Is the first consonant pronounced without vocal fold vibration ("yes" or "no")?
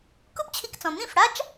yes